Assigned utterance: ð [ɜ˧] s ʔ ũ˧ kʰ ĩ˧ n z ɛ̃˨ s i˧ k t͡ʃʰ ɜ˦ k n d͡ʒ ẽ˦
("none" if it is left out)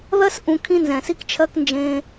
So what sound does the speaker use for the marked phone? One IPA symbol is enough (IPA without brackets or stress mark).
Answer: ɜ˦